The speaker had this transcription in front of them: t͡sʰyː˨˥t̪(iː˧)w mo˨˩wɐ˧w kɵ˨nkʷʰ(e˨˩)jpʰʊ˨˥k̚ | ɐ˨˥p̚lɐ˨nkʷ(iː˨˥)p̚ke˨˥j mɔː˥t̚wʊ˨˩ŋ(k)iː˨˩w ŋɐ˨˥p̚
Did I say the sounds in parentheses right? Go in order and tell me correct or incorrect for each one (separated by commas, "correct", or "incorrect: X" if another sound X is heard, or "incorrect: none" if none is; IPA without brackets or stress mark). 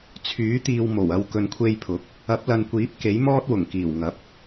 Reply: incorrect: iː˨, incorrect: e˧, correct, correct